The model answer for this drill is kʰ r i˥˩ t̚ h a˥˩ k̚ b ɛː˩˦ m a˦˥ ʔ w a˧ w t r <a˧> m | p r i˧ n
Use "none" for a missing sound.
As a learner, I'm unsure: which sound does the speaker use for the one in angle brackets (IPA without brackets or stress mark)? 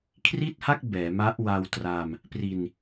a˧